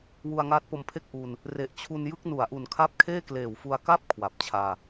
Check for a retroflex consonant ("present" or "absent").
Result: absent